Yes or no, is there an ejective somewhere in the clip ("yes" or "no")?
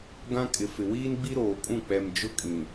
yes